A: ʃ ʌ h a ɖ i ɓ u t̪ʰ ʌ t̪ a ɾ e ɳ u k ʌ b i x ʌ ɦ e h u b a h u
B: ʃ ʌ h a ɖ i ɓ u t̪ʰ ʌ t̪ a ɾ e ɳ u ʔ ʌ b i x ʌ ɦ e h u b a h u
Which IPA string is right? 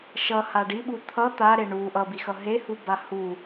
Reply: B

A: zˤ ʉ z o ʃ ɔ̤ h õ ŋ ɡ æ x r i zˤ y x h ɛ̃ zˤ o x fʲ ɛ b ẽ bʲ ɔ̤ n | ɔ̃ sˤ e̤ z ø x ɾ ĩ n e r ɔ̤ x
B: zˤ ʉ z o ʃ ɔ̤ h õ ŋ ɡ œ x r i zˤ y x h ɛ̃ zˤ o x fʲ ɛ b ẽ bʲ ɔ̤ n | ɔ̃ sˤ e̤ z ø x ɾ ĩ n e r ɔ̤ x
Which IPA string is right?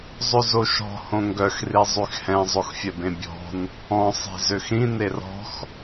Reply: B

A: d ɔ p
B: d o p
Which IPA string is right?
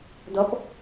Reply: A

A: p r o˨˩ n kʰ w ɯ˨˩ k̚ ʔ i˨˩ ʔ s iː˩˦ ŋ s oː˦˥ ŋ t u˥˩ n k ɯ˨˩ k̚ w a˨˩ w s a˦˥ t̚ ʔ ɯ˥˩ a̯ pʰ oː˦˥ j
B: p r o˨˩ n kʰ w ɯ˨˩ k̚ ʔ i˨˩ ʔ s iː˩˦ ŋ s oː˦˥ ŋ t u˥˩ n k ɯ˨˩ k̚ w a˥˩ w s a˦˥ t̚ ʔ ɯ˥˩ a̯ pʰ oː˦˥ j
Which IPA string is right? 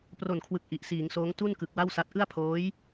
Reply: B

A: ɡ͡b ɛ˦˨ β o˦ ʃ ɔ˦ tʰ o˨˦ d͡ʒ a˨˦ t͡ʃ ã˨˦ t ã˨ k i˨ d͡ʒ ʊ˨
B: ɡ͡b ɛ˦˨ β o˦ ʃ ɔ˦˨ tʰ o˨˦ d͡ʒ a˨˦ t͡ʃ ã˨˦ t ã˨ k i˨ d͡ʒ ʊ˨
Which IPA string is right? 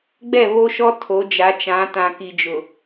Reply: A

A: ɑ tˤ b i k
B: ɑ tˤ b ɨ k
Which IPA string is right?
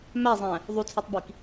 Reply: A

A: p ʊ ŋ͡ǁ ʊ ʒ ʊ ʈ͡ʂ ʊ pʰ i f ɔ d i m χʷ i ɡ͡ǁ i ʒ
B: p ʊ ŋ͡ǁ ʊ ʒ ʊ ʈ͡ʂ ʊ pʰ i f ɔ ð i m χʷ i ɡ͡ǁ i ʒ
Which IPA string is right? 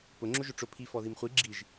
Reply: B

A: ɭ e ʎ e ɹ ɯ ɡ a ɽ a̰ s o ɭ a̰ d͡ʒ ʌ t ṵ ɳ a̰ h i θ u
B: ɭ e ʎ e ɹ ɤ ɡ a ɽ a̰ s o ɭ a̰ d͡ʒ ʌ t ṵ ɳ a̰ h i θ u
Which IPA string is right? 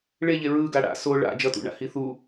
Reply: A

